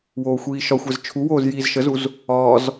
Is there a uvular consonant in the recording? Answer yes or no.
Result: no